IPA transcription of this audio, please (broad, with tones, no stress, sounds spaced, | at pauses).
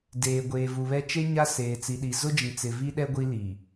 d eː˨ ɡʷ eː˨ v u˨ β ɛ˦ t͡ʃ e˦ ɲ a˦ s eː˨ t͡s i˨ ɗ i˨ z ʊ˦ d͡ʒ ĩ˨ t͡s ɪ˨ v i˦ ɗ ɛ˦ ɡʷ i˦ l i˨